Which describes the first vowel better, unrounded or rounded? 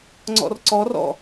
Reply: rounded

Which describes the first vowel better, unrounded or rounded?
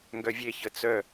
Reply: rounded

